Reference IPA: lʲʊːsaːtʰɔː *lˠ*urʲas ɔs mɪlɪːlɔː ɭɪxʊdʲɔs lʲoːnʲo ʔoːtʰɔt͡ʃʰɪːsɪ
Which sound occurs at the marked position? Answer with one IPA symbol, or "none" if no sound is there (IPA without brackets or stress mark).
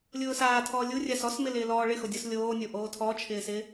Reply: lʲ